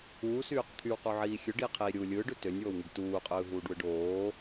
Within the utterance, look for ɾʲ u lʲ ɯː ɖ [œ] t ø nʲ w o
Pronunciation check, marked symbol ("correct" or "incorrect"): incorrect